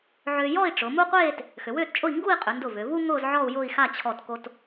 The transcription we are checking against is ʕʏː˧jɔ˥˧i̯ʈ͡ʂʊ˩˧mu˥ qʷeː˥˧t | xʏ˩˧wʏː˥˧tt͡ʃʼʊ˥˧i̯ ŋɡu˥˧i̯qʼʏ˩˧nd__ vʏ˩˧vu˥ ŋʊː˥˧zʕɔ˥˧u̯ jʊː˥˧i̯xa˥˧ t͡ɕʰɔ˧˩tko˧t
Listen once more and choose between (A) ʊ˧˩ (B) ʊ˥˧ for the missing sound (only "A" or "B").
A